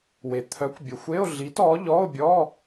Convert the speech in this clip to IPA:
w e˩ t̪ʰ œ˩˥ kʷ bʲ ə˩ xʷ e˧˥˧ o̯ ɮ i˩˥ t ɔ˩˥ ʎ ɔ˧˥˧ o̯ bʲ ɔ˧˥˧

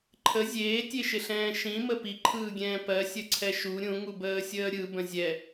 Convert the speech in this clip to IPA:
ǃʰ ə zʲ eː tʲ e ʃ ɪ ɬ ɛ̃ː ʃ ĩ m ə p i ǃʰ ɯː ɡʲ ɛ̃ː p ɜ sʲ ə ǀʰ ɛ ʃ u ɾʲ ũ ŋ u b əː sʲ əː ɾʲ ɯ b ə̃ zʲ ɛ

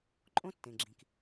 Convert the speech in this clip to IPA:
ǃʼ õ˥ tː ẽ˩ ɡ͡ǁ ĩ˩ k

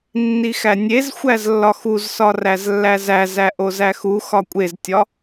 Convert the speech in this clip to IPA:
nː i x æ nʲ e z xʷ æ z lː ɒ x u z s ɒ r æ z lː æ z æ z æ ʔ o z æ x u x ɒ kʷʼ e z tʲ ɒ

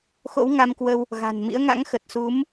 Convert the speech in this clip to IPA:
x o̰˧˥ w ŋ a˧ m k w ə˧ w | ɣ a̤˨˩ n m ḭ˧˥ ə̯ ŋ a̰˧˥ ŋ x ə˨˩ t̚ s u˨˦ m

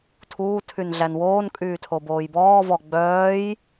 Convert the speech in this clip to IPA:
tʰ uː tʰ y n ɮ æ n w oː n kʼ yː tʰ o b oː j b ɔː v ɔ ɡ͡b œː j

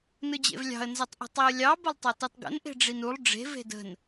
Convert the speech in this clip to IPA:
n ɯ d͡ʑ ḛ v lʲ ɑ̤ ə̯ n z ɐ tˤ ʔ ə̤ tˤ i ə̯ lʲ ɑ b ə lˠ tˤ ɐ t ɯ tˤ ɡ ə̰ n ʔ e̤ ɖ͡ʐ i n u lˠ ɖ͡ʐ e̤ v e̤ d ə̤ n

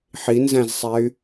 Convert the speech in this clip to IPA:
ħ i n z æ̃ z sˤ æ y̯

